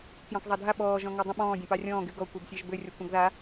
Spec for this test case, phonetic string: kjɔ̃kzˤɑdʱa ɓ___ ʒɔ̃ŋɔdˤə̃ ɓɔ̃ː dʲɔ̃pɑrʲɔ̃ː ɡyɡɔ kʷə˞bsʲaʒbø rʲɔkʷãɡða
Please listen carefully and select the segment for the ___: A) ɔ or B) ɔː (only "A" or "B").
B